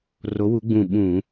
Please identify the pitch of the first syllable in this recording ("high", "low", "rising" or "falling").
rising